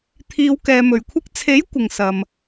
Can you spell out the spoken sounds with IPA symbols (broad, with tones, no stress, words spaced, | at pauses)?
t̪ʰiː˨˧wkɛː˨mɵ˨˩ɥkʷʰɪ˥k̚ t͡sʰe˨˥j kʷɪ˨ŋsɐ˨m